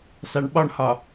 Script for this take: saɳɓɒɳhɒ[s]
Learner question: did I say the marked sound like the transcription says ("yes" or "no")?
no